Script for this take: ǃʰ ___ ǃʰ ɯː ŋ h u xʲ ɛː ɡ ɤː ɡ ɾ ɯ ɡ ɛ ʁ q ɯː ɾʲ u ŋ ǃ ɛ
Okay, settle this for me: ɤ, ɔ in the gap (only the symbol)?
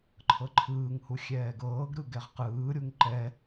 ɤ